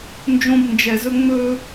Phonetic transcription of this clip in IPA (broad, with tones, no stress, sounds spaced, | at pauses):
n d͡ʒ õ˦ b n d͡ʒ ɛ˧ z ɵ˦ ŋ͡m ɵ˧